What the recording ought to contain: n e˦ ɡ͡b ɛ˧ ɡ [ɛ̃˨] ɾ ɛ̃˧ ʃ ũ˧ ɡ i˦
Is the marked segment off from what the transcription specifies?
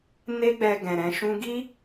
no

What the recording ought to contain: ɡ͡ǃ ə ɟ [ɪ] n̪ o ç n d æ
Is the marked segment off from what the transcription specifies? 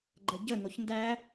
yes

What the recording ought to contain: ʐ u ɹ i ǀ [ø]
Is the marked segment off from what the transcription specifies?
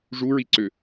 no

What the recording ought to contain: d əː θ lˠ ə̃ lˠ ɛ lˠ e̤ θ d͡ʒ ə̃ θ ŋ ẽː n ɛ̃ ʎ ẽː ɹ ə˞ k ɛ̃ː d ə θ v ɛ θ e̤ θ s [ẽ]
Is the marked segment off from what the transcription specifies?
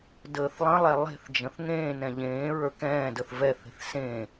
no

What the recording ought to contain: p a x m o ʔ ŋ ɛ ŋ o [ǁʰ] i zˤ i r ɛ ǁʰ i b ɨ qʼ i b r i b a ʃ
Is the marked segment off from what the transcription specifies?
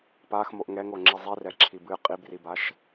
yes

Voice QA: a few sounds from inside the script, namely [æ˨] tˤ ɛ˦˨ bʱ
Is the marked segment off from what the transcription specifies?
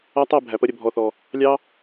yes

